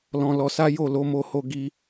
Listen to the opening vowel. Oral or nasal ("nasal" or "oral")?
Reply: nasal